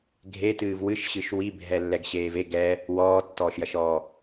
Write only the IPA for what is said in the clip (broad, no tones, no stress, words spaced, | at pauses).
ɡʱetɨːv wɨʃɕɨʃ wibʱɛlːɛɡɕeːv e ɡɛ | wɔːtːɔːʃjɐʃɔː